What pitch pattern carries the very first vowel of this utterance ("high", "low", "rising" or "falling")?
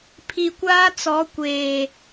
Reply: low